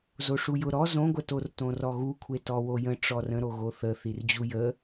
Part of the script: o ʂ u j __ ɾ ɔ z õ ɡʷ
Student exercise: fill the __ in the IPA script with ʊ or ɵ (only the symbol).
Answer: ʊ